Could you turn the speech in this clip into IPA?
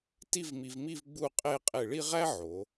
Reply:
t i˥˧ v m i˧ v m i˥˧ v ɡ͡b u˥˧ qʼ e˥˧ qʼ e˧˩ ɭ i˥˧ ʁ æ˥ ʕ o˩˧

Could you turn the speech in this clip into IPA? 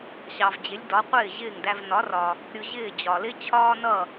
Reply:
ɕ ɑ˩ v d͡ʑ ɪ˩˥ lʲ d ɒ˩˥ qʷ ɪː˥˩ ʑ ɪː˥˩ ŋ d æ˧ v n ɒ˩˥ r ɒ˩ | ɾʲ ʊ˧ ʑ ɪː˥˩ d͡ʑ ɒ˩ l ɪ˥ t͡ɕʰ ɒː˥ n ʌ˥˩

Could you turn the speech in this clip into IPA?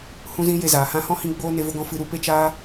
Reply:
h ũ˦ z ĩ˦ j e˧ z aː˨ h ã˧ h ɔ̃˦ h ĩ˧ ɡ͡b oː˦ n e˧ v o˧ ɡ ɔ̃˧ f ɨ˦ ɾ u˧ p e˦ t͡ʃ aː˦

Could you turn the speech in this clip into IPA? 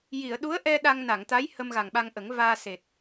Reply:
j i˨˩˨ ə̯ ɗ u˧˥ ə̯ ʔ ɛ˧ ɗ a˧ ŋ n a˨˩˨ ŋ t̪ a˧˥ j h ə˧ m ɣ a˨˩ ŋ ɓ a˧ ŋ ʔ ə˨˩˦ ŋ v aː˧ s e˨˩ t̚

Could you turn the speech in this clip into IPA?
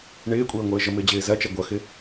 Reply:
ɳ ɪː kʷʼ əː ŋʷ əː ʒ ə m ɪː d͡ʑ ɪː z ɐ t͡ʃ ɐ ɡʷ ʌ x ɪ

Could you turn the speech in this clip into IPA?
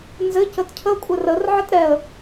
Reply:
n z ɘ c ə t cʰ ə kʷʼ ɘ r ə r ʕ ɘ t ɾ ɛ ə̯

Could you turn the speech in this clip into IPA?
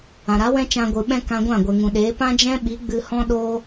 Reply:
ã˨ ɾ a˨˦ w ɛ̃˦ t͡ʃ ã˧ ɡʷ ɨ˨ ɓ ɛ̃˦ k ã˧ ɡʷ ã˦˨ ɡʷ ɛ˨ ŋ ũ˨ ɗ eː˨˦ p ã˦ d͡ʒ ɛ̃˦ ɓ i˨˦ ɡ͡b ɨ˧ h ɔ̃˦ ɗ oː˦

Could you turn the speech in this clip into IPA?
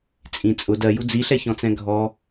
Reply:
t͡sʼ ĩ t͡sʼ ʊ d ɜ j u d͡z i ɬ ɛ ç ɔ̃ t͡s ɛ̃ ɡʱ ɔ

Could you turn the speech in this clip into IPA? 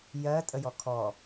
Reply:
j ɜ tʼ ə j ɔ kʰ ɔ

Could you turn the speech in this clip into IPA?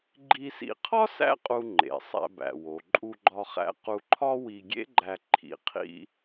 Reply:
ɡ͡ǃ i˧ s ḭ˧ qʰ ɒ˥ s æ̰˥ qʼ u˧ ŋ͡ǃ ḛ˩ sˤ æ̰˧ b æ̰˩ w o˩ ǃʼ u˧ ɡ͡ǃ ɒ˧ χ æ̰˧ q u˧ ǃʰ ɒ˥ w i˧ ɡʲ ḛ˥ ɡ͡ǃ æ˧ ǃʰ ḭ˧ qʰ ḭ˥

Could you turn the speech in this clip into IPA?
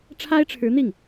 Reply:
ʈ͡ʂʰ a˥ ɪ̯ ʈ͡ʂʰ ɻ̩˧˥ n̪ i˥˩ ŋ

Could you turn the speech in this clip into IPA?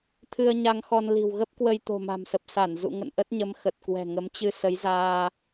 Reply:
t̪ʰ ɨ˧ ə̯ ɲ a˧ ŋ x ɔ˧ n l i̤˨˩ w ɣ ə˦˥ p̚ k w ə˧ j t̪ o̤˨˩ m a̤˨˩ m s ə˨˩ p̚ s a˧˩ n z ṵ˧˨ ŋ ə̰˧˨ n ʔ ə˦˥ t̚ ɲ ə˨˦ m x ə˨˩ t̚ k w ɛ̤˨˩ ŋ ə˨˦ m t͡ɕ ɨ˧ s ə˨˦ j z aː˧

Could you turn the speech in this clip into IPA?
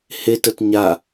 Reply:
h e t ə t ɲ a

